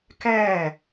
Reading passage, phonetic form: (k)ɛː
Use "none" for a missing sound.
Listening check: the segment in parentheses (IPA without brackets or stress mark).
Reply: k